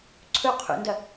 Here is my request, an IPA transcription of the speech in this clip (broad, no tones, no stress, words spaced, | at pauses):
ǀʰɵ qʰṵndɐ